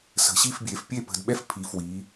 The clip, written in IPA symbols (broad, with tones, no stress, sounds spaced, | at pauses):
s ə̤˩˧ ɕ i˥˩ f bʲ e˩˧ f pʲ e˥˩ p ə̤˩˧ d ɓ ɛ˥˩ f pʰ i˩˧ f w i˩˧